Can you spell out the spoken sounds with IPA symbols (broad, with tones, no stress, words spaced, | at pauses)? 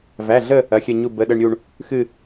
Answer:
væ˩˧˩ɮə˦˨ | ɐ˩˧˩xʲɐ˦˨ɲu˦˨ bə˩˧˩ɗə˦˨ɳɾʲu˦˨ɳ | xɨ˦˨